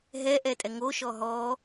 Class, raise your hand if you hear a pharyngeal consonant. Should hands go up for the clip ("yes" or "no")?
no